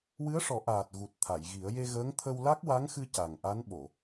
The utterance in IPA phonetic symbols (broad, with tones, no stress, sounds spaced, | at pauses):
w ɨ˧˥ ə̯ ʂ ɔ˨˩˦ ʔ aː˨˩ t̚ ɣ u˨˩ t̚ t̪ʰ a˨˩˨ j ɣ i˨˩˦ ə̯ j e˧ ɣ əː˧˥ ŋ t̪ʰ ə˧ w l a˦˥ k̚ w a˧˥ ŋ x ɨ˧ c a˨˩ ŋ ʔ a˧˥ n ɓ o˨˩˨